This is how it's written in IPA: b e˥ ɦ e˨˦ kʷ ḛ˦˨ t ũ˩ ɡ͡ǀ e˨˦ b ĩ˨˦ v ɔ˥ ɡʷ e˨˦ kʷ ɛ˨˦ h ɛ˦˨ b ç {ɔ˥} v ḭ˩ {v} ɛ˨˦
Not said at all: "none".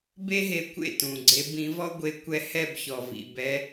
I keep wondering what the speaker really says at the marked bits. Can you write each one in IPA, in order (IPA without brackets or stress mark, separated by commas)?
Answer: ɔ˩, b